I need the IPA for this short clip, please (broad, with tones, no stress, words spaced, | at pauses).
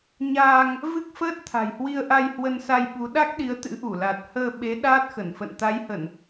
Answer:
ɲaː˧ŋ | vɨ˦˥k̚fəː˦˥t̚ t̪ʰa̤˨˩jhwi˧ə̯ʔa˧j hwə˧nsa˧jɓu˨˦ ɗa˦˥k̚ɗi˨˦ə̯t̪ɨ̰˧˥ ʔu˧˩la˨˩t̚ həː˧ɓe˨˦ ɗaː˦˥t̚xə˧˩n fə̰˧˨nt̪a˨˦jhə˧˩˨n